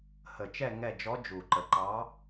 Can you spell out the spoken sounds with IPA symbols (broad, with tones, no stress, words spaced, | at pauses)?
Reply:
hə˨˩t͡ʃɛ˦˨ ŋɛ˦˨d͡ʒɔ˧˥ d͡ʒu˨˩ǃə˨˩ǃɑ˧˥